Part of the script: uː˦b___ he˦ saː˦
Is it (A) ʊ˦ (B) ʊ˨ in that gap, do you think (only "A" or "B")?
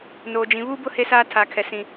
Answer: A